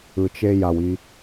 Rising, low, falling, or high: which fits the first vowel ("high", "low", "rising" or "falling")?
low